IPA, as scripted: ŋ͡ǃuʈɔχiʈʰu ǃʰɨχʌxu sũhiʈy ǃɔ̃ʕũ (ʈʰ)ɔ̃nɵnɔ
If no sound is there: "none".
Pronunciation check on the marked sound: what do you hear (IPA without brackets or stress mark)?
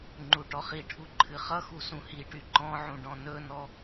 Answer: ɖ